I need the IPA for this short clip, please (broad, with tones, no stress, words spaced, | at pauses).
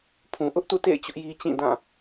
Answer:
pʰũ˨ʔʊ˦ʔtṵ˦˨tḛ˦˨ɪ̯ t͡ɕʊ˦ʔji˦ t͡ɕĩ˦˨dã˦˨